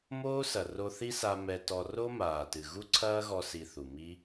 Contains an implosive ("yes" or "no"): no